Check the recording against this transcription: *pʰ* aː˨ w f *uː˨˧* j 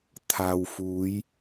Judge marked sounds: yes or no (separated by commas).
no, yes